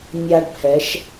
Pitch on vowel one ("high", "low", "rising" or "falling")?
high